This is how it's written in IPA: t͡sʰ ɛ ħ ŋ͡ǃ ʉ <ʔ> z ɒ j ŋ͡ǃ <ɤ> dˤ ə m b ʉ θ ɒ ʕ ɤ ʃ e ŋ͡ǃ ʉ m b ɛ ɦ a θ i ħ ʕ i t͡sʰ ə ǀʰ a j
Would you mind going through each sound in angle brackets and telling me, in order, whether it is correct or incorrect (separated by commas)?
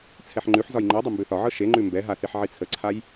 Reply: incorrect, correct